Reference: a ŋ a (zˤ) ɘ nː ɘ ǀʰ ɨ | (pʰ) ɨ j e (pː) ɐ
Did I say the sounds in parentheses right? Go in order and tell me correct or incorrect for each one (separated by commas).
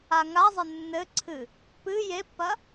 correct, incorrect, correct